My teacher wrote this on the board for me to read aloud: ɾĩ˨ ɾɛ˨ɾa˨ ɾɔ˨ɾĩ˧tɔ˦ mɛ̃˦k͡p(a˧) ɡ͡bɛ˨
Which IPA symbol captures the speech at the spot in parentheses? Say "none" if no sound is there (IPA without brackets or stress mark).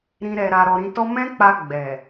a˧